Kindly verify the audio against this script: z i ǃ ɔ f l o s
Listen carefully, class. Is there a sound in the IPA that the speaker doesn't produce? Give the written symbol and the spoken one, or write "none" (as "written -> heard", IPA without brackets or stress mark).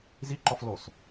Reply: none